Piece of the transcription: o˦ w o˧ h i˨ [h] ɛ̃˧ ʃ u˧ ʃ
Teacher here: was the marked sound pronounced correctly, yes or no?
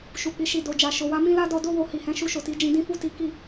yes